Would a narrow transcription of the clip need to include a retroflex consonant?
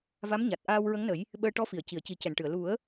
yes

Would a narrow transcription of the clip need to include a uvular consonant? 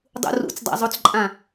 no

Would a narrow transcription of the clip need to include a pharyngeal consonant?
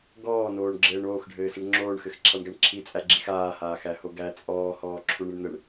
no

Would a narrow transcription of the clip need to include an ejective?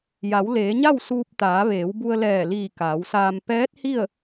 no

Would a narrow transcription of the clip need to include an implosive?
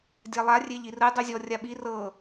yes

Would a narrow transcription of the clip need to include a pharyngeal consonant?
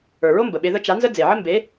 yes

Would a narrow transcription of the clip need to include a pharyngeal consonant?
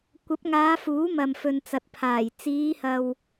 no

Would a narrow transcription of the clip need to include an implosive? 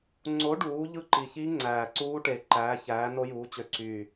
no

